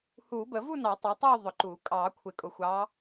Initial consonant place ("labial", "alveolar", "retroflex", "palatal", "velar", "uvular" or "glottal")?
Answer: glottal